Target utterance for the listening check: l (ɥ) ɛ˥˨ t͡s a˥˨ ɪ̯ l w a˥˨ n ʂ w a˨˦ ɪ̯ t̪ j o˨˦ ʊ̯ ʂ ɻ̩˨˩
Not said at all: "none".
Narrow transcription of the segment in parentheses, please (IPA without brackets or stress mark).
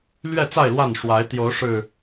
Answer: ɥ